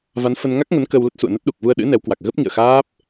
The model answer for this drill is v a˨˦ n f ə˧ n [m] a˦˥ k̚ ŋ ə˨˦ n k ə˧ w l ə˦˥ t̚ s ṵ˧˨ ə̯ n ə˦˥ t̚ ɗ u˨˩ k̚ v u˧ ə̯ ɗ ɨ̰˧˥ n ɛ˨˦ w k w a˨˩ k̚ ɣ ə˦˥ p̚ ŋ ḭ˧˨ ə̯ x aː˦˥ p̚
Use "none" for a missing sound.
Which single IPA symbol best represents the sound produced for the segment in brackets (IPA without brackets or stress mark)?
ŋ